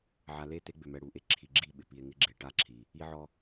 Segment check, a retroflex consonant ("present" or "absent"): present